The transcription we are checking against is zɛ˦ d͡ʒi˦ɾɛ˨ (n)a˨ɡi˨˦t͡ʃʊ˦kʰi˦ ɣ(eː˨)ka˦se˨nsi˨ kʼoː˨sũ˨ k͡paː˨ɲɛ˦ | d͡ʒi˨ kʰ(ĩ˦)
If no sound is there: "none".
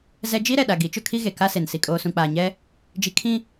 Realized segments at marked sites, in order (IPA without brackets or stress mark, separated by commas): ɗ, e˨, ĩ˦